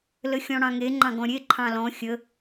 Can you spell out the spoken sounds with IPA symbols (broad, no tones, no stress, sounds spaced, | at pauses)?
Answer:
l ə xʲ ɔ̃ ɽ ɑ̃ ŋ e ŋ͡ǃ ɑ̃ ɡ ɔ̃ ɾʲ e ǃʰ ɑ̃ l ɔ̃ xʲ ə